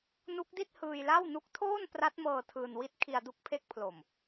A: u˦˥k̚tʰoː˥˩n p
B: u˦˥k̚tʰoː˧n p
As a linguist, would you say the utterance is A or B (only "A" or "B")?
A